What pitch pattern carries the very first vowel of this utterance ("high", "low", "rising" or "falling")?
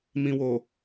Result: low